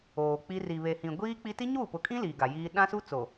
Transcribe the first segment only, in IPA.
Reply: oː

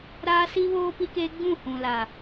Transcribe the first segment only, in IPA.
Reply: ɾ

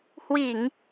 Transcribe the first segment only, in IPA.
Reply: h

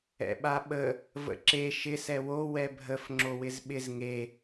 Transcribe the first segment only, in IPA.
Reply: ɛ̰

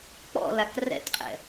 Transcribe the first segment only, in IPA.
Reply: k͡p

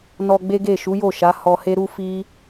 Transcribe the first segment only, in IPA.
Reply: n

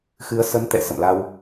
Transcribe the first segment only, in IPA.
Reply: x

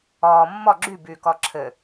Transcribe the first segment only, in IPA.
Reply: ɔː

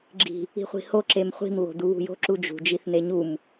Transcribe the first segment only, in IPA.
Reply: ɡ͡ǁ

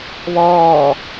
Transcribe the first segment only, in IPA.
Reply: β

